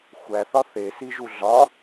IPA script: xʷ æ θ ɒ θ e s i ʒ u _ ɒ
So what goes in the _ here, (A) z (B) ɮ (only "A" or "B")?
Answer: B